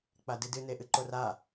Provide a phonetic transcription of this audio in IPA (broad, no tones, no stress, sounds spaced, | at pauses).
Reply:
k͡p a d ɨ d ɨ n e ʔ ɨ ǃ o r a